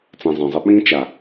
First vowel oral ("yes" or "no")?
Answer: no